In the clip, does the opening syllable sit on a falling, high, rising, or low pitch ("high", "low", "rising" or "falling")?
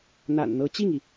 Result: low